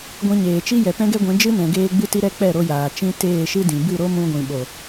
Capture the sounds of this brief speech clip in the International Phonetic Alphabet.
ɡʷ ĩ˧ ɲ eː˨ t͡ʃ i˦ j ɛ˨ p ɛ̃˦ ɡ ɛ˦ ɡʷ ɛ̃˨˦ d͡ʒ ɨ˦ n ɛ̃˨ ɡ eː˧ ɡ͡b ɨ˦ t i˦ ɾ ɛ˦ k͡p ɛ˦˨ ɾ o˧ j aː˨ t͡ʃ ĩ˦ t eː˦˨ ʃ ɨ˦ d ĩ˨ b ɨ˦˨ ɾ o˦ m ũ˧ ɡʷ ĩ˨ ɓ o˨

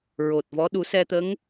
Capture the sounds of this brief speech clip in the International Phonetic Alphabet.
ɹ o˨˩ t̚ v ɔ˧˥ ɗ u˨˩˦ s ɛ˧ t̪ ə˧˥ ŋ

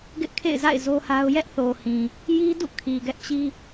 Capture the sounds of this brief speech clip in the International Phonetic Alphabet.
ɡ ɪ˦ ʔ kʰ ḛ˦˨ ɪ̯ z a̰˦˨ ɪ̯ z o˦ h a˦ ʊ̯ j ɛ˦ ʔ θ o˨ h ĩ˨ | j i˦ d ṵ˦˨ kʰ i˨ ɡ ɛ˦ ʔ t͡ɕ i˦

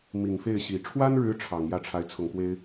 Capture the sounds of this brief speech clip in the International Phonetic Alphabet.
m i˨˩ ŋ f e˥˩ ɪ̯ ɕ i˨˩ ʈ͡ʂʰ w a˥ n ɻ ɻ̩˧˥ ʈ͡ʂʰ ɑ˨˩ ŋ j ä˥˩ ʈ͡ʂʰ a˧˥ ɪ̯ t͡sʰ ʊ˨˩ ŋ k w e˥ ɪ̯

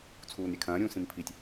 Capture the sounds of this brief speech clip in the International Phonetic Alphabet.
t͡sʰ uː n ɾʲ ɛ kʰ ɐ̃ː ɾʲ ũː s ĩ m pʰ i tʲ

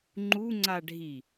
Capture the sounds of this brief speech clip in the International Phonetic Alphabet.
ŋ͡ǃ u ŋ͡ǀ a ɖʱ i

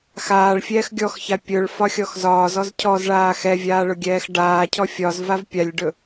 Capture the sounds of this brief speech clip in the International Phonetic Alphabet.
x aː ɭ fʲ ɛː x ɡʲ ɔ x ç a pʲ ɵ ɭ f ɒ xʲ ɔ x z ɒː z ɔ z cʰ ɔ z ɭ aː x ɛ vʲ aː ɭ ʊ ɡʲ ɛː x ɖ aː cʰ ɔ fʲ ɒ z v a v pʲ a lʲ ɖ ɵ

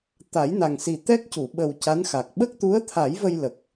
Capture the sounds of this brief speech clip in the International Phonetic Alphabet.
t̪ a˨˩˦ j n a˨˩ ŋ s i˨˩ t̪ ɛ˦˥ k̚ c u˨˩˨ ɓ ə˨˩ w c a˧˥ n x a˨˩ k̚ ɓ ə˦˥ k̚ t̪ u˧˥ ə̯ t̪ʰ a˨˩˦ j v ə˧ j l ə˨˩ k̚

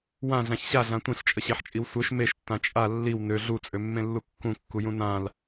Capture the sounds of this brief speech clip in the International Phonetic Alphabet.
w ã ɮ ã ç ɕ a ɮ ã tʷ ĩ ɬ t͡ʃʼ ə ɕ e ħ t͡ʃʼ i w sʷ œ ʃ m e ʃ tː ã t͡ʃʼ a lː i w n ø ɮ u t͡sʼ ø mː ẽ lː u kː ũ kː u j ũ n ã l

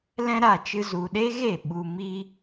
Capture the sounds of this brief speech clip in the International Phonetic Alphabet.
l ɛ̃˦ ɾ a˦˨ t͡ʃ ɨ˧ z u˨ ɗ e˦ ɣ e˦˨ ɓ u˧ m i˦

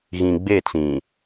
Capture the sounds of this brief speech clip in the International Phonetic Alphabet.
ɣ ĩ˨ ɡ͡b e˦˨ t͡s ĩ˨

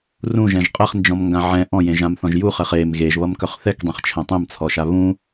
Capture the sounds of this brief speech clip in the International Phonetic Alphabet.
r ũ ʒ ɛ̃ ʒ qʼ ɛ χ n d͡ʒ ɔ̃ m ŋ ɡ ã ʕ ɛ̃ ʔ ɔ̃ j ẽ ʒ ã m θ ɔ̃ ʒ j u χ ɛ χ e m ɣ e ʒ β ʌ m k œ χ θ ɛ k dˤ ɛ̃ χ t͡ʃʰ ɛ̃ tˤ ẽ m t͡sʰ ɔ ʃ a β ũ

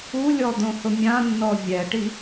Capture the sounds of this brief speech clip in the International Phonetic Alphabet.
u lʲ ɔ d̪ õ h ʊ mʲ ã nː ɔ vʲ ɛ ʈ i

